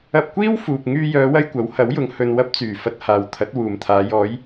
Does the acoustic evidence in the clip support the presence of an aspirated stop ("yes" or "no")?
yes